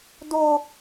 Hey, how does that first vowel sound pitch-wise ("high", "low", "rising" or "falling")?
high